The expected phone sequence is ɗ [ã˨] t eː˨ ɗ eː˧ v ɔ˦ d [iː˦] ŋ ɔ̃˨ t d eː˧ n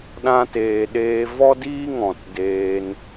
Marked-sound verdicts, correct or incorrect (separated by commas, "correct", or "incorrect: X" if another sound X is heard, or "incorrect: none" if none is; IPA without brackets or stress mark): incorrect: ã˧, correct